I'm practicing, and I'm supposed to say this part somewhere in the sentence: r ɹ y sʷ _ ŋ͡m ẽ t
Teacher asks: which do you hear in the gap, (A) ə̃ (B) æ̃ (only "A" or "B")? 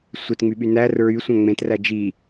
B